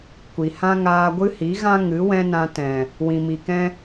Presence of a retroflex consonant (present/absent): absent